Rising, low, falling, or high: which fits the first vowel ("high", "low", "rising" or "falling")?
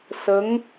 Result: rising